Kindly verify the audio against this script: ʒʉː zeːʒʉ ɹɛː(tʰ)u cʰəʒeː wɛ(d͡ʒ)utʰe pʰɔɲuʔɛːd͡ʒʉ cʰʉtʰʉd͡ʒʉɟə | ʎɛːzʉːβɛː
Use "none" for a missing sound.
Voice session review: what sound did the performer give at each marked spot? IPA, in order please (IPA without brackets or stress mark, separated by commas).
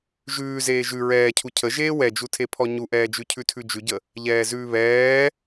cʰ, d͡ʒ